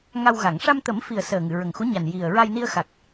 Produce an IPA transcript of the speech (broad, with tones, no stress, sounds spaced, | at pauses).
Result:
ŋ a˧ w ɣ a˨˩˨ ŋ ʂ a˧ m t̪ ə˨˩˦ m f i˨˩ ə̯ s əː˨˩ ŋ ɨ˨˩˨ ɹ ə˨˩ ŋ x u˧˥ ɲ a˨˩ n j i˨˩ ə̯ ɹ a˧ j n i˧ ə̯ x a˨˩ k̚